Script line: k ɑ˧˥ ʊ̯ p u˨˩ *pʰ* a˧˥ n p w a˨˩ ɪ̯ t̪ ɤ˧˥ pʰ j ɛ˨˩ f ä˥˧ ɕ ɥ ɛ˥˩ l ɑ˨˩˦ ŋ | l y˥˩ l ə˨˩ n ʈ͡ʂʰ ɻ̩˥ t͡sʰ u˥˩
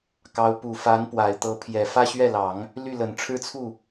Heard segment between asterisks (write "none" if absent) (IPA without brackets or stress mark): f